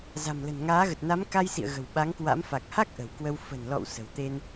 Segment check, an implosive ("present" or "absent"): present